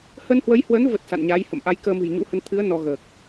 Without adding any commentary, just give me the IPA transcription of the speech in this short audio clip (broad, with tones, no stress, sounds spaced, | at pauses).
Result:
h ə˧ n h w ə˨˦ j h w ə˨˦ n v ə˨˩ t̚ s a̰˧˨ n ɲ a˨˦ j h ə̰˧˨ m ʔ a˨˦ j k əː˧ m ɨ̤˨˩ j ɲ ṵ˧˥ h ə˧ n t̪ʰ ɨ˨˦ ə̯ n ɔ˧ ɣ əː˨˩ k̚